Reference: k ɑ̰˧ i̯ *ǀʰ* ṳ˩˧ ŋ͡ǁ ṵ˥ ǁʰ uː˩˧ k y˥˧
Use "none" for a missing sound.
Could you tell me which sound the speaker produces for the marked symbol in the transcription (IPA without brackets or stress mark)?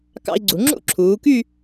ɡ͡ǀ